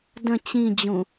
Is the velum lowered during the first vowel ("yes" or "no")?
yes